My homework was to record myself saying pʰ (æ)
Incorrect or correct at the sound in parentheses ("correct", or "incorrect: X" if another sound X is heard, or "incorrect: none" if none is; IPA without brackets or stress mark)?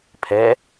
incorrect: ɛ